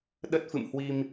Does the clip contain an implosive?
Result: yes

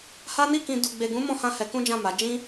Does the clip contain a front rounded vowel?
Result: no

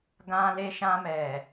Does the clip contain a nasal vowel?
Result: yes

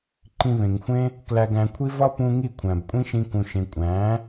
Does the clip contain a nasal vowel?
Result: yes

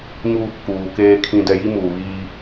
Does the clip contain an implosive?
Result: no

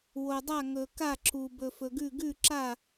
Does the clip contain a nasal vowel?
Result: no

